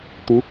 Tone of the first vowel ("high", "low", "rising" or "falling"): rising